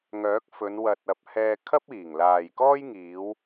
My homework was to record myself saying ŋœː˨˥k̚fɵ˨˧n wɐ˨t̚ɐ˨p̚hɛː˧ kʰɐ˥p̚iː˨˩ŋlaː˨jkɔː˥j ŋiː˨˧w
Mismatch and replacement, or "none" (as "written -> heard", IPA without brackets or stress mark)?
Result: none